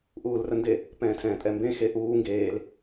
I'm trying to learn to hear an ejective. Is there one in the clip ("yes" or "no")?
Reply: yes